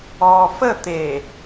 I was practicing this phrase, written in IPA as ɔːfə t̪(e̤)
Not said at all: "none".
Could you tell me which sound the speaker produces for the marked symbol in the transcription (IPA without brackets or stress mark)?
e